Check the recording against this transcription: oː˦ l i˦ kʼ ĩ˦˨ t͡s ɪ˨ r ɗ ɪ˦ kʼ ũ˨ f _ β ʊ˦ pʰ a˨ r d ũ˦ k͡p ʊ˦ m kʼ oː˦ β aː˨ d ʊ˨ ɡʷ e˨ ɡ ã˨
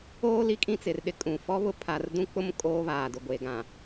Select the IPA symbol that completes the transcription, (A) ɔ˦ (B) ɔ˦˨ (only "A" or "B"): A